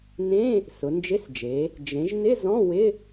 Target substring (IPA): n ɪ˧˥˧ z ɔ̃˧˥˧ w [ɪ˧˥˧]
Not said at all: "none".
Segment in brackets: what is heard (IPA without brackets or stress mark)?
ɪ˧˥˧